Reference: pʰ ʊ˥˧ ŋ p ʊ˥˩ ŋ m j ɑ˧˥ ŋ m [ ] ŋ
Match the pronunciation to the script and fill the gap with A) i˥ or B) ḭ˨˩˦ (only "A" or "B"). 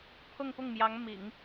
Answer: B